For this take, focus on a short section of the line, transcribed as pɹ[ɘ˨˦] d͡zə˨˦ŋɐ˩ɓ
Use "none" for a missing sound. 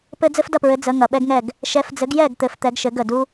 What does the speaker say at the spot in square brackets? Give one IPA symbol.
ɘ˨˦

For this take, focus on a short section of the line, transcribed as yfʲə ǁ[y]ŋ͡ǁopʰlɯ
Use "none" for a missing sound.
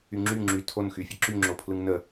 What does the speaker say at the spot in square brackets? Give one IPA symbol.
y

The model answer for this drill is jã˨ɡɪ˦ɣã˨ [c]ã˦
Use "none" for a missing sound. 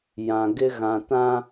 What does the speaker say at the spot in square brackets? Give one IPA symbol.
t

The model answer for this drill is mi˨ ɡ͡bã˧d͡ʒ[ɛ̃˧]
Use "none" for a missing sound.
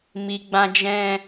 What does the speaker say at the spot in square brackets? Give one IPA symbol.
ɛ̃˧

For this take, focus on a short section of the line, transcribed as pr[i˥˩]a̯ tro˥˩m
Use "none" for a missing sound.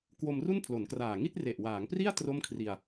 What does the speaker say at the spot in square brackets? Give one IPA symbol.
i˥˩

